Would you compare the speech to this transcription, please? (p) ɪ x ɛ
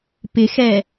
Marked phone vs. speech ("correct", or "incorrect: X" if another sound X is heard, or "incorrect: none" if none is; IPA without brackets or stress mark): correct